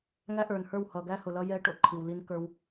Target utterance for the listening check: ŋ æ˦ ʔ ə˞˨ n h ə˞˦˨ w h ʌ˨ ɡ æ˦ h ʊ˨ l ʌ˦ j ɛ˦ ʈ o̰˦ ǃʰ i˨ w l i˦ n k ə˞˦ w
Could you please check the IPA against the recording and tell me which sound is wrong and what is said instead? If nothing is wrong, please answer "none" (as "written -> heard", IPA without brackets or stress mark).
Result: none